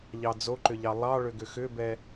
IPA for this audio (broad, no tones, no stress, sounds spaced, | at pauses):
ʎ ɑ d͡z o ǃ ʏ ʎ ɑ lˠ ɑ ɭ ʏ ɡ ʏ x ʏ b ɛ